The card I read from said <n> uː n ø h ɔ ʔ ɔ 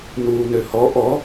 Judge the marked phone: correct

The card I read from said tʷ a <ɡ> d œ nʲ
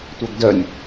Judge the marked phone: correct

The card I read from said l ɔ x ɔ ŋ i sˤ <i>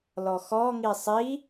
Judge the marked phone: correct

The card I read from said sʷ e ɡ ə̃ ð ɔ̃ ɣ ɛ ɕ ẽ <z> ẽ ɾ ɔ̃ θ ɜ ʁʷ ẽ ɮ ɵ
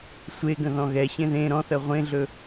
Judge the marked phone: incorrect: ð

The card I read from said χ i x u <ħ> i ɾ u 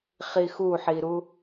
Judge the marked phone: correct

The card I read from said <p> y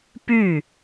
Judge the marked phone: correct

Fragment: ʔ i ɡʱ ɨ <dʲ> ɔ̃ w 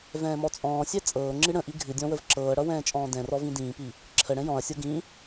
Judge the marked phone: correct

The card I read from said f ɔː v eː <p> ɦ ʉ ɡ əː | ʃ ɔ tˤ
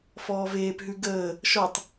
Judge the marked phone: correct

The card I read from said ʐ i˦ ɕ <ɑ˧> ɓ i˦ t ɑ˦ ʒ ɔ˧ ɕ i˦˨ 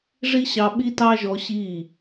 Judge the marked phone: correct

